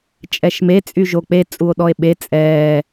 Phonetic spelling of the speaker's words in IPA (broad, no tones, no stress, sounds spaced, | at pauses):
t͡ʃʼ ɛ ʃ m e t͡sʼ y ʒ o k͡p e t͡sʼ u o̯ ɗ ɔ e̯ ɓ e t͡sʼ ɛː